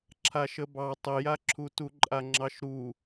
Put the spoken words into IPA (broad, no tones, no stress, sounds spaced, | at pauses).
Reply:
ǁʰ a ʃ ə b ɑ tˤ ə j a ǁʰ u t u ǃʼ a ŋ͡ǁ ɑ ʃ ɾ u